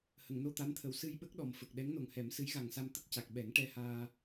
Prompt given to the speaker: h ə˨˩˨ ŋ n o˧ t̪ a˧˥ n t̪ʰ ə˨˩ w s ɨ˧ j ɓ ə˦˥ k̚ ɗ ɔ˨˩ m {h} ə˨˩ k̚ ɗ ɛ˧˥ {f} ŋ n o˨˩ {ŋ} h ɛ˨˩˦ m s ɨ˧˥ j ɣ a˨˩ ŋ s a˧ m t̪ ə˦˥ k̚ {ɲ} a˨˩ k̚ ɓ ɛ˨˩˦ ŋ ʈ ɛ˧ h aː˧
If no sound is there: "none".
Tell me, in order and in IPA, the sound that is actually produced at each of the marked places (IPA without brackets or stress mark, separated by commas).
f, none, ŋ, c